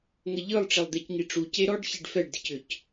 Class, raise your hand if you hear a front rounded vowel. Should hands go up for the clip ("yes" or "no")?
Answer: yes